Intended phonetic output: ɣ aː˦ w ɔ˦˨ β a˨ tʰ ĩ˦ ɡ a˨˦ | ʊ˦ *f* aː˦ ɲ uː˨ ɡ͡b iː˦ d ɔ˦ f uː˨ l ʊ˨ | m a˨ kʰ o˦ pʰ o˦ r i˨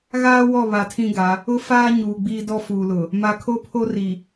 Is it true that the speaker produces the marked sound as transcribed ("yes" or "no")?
yes